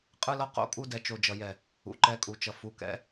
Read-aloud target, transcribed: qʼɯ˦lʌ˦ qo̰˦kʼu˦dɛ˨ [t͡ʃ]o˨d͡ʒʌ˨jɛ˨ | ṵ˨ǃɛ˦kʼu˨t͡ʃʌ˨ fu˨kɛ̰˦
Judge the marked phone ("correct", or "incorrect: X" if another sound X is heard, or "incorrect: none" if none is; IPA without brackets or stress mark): correct